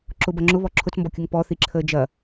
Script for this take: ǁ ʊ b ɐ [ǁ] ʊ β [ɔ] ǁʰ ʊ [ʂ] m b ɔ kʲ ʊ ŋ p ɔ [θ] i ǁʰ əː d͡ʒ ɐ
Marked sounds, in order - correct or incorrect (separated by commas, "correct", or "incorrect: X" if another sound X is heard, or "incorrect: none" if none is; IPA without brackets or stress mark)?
incorrect: ŋ͡ǁ, correct, incorrect: t͡s, correct